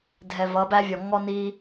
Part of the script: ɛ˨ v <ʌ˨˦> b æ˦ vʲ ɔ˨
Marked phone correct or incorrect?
correct